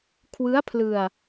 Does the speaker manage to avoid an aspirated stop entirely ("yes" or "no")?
no